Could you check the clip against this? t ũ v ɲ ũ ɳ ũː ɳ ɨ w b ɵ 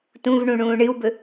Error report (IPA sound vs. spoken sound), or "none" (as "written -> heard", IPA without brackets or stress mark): ɲ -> ɳ